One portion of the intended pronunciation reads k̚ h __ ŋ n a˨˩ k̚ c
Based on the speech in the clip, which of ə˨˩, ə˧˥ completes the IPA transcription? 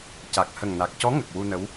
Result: ə˨˩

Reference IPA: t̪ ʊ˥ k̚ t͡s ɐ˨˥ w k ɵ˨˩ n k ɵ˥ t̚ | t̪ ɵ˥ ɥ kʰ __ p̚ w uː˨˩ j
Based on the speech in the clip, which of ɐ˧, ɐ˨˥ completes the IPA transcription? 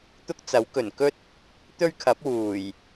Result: ɐ˨˥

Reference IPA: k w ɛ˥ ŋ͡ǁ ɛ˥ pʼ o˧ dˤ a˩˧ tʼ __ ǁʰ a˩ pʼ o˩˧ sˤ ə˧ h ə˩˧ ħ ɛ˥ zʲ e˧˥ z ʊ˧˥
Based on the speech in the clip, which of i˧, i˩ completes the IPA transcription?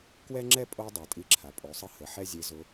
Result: i˧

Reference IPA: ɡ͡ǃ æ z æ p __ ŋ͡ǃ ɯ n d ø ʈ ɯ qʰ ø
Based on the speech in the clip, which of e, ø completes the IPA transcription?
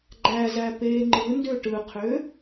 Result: e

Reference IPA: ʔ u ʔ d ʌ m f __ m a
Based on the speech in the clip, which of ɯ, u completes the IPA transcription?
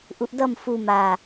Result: u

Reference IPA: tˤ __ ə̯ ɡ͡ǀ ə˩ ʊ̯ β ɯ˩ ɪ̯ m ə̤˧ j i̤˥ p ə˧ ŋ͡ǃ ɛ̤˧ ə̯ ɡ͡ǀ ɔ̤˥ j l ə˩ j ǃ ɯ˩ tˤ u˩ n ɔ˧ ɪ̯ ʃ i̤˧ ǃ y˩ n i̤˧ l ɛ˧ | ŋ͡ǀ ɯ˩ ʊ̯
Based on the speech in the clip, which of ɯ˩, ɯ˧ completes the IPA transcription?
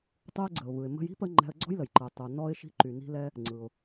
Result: ɯ˧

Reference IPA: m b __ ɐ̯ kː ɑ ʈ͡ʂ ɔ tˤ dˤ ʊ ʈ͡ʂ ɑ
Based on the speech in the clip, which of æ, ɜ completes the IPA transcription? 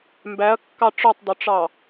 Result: æ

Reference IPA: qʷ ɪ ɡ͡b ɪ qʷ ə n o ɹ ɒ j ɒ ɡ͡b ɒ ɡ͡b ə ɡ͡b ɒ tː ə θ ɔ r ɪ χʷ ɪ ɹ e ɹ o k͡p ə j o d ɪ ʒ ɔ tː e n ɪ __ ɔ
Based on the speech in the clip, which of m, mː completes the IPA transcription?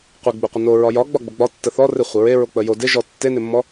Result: mː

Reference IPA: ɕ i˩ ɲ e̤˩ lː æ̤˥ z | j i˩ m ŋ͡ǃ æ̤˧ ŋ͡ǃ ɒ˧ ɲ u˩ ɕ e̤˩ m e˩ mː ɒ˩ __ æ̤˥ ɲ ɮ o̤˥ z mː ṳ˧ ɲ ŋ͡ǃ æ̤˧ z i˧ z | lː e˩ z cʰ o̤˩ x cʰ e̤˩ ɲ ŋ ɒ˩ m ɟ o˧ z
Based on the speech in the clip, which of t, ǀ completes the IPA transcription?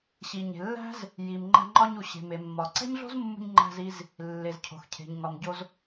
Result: ǀ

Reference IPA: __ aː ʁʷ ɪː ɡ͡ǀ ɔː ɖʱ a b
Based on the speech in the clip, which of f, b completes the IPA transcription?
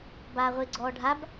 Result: b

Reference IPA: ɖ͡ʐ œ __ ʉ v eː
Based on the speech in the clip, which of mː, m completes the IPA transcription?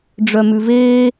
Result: m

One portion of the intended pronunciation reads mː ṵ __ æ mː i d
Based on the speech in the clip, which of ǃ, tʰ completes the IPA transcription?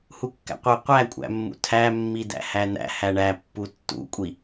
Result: tʰ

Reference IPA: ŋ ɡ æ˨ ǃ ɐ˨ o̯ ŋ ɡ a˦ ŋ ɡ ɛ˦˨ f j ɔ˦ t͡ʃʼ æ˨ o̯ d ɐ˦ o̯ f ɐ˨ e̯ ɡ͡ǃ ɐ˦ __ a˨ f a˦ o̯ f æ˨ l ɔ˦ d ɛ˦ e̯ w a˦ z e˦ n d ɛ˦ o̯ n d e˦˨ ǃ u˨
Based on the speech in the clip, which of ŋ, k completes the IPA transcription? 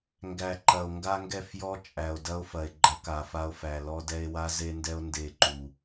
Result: k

